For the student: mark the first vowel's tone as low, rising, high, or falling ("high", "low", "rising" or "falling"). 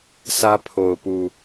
high